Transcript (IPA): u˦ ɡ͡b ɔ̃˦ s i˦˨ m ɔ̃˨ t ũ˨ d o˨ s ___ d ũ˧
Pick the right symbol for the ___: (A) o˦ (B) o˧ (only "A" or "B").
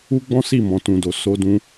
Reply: B